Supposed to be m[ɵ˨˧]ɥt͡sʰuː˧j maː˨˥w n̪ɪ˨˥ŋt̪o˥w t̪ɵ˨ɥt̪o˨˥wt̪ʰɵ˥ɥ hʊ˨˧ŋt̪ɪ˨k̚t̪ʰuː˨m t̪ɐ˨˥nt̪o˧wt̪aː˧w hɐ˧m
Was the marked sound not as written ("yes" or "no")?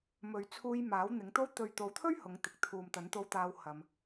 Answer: yes